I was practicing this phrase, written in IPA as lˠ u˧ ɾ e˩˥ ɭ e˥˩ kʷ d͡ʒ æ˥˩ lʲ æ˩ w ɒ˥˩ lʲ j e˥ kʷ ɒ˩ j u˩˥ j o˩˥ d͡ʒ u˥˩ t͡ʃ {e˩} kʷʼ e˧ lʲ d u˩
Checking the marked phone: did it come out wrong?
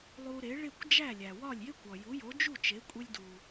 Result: yes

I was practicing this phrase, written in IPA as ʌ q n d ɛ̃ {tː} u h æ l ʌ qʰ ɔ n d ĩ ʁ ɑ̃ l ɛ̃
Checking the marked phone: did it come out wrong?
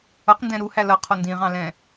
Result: yes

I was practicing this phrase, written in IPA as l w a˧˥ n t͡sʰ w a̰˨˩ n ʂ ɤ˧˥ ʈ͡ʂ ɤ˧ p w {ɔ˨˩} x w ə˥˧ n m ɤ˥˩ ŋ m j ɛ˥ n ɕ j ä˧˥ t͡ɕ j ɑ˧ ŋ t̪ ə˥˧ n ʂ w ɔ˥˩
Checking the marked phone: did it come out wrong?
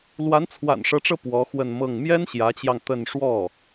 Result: yes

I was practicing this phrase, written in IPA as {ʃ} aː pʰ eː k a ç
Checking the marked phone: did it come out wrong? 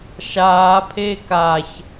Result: no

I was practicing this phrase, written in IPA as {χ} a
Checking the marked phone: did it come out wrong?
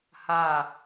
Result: yes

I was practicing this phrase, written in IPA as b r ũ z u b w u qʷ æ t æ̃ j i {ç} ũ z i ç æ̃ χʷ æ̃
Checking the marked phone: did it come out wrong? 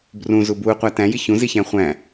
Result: no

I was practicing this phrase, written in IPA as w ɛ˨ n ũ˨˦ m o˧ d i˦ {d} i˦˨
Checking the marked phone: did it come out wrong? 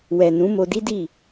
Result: no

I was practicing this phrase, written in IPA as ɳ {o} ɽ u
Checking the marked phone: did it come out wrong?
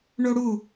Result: no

